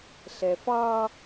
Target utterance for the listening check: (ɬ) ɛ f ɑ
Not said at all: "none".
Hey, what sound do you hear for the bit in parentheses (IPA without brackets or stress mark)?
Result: ɬ